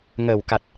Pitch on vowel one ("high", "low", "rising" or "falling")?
low